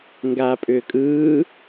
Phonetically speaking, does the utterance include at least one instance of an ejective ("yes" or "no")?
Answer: yes